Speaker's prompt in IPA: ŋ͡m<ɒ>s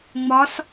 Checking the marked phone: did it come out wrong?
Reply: no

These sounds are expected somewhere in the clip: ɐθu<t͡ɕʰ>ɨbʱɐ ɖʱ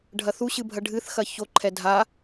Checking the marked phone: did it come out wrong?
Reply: yes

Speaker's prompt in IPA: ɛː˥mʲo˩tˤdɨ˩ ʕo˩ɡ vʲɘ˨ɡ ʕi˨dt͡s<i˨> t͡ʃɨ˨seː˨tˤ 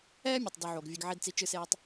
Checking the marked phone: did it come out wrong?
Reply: no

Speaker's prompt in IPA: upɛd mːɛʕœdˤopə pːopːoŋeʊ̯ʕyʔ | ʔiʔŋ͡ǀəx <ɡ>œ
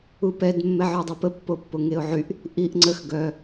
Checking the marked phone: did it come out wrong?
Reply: no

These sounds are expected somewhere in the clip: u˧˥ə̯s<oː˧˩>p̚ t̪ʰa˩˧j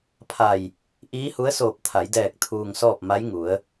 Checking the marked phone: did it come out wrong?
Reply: no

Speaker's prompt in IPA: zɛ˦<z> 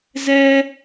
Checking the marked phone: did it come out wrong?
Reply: yes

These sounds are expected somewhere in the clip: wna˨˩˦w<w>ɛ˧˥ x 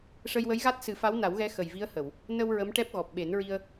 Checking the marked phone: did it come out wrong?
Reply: yes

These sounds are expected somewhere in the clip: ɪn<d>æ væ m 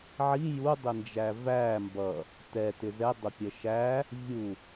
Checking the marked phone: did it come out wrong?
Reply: yes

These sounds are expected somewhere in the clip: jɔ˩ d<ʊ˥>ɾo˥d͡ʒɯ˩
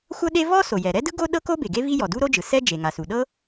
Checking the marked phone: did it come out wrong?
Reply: yes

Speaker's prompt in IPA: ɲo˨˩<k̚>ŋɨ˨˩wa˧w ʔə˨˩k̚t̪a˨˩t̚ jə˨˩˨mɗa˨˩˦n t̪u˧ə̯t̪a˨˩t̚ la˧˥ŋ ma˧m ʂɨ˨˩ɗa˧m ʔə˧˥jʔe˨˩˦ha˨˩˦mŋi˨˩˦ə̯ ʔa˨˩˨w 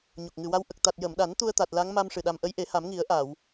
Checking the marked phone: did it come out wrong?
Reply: no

